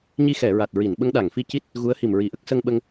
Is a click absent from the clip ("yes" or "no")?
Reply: yes